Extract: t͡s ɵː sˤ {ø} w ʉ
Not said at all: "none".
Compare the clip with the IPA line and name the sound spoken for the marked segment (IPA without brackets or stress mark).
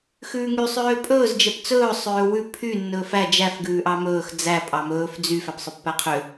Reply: øː